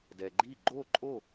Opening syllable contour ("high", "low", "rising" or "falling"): low